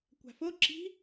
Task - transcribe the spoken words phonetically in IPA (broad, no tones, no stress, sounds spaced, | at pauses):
kʷ a̤ f o ǁ i̤